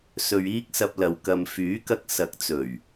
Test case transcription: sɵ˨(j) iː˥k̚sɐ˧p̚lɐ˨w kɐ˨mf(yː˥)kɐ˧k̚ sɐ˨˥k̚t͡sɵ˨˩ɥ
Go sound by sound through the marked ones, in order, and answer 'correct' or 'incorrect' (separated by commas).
incorrect, incorrect